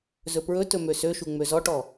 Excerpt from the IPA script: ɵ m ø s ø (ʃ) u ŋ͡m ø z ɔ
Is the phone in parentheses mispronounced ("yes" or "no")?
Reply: no